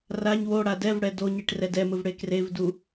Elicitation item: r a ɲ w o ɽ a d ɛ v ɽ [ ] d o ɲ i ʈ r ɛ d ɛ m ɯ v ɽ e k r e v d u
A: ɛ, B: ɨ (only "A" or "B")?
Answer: A